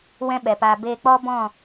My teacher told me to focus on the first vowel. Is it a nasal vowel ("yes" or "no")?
yes